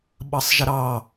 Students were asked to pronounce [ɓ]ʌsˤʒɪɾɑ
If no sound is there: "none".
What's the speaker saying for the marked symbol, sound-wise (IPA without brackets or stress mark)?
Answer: ɓ